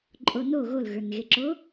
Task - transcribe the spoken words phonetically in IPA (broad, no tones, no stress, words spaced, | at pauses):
ǃʼono ɣolɣə˞nɣeǁo